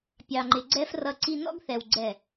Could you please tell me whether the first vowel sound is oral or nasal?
oral